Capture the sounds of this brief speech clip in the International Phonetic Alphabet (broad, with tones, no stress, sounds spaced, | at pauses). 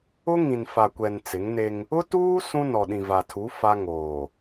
ʊ˦ ŋ ĩ˨ n f a˨ kʷ ɛ˨ n t͡s ɪ˨˦ ŋ n e˦ ŋ | ʊ˦ t uː˦ s ũ˦ n ɔ˨ ɗ ĩ˨ v a˨ tʰ u˨˦ f a˦ ŋ oː˨